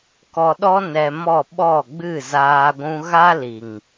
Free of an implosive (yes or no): no